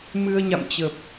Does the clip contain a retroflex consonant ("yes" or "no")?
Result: no